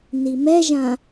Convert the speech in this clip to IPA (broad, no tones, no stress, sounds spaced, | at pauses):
n i m ɛ ʒ ã